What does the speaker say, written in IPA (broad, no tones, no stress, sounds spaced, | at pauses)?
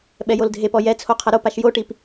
ɓ ɛ j o l dʱ e p ɔ j ɛ t͡sʰ o qʰ ɐ ɾ o p a ʃ j o ʈ i p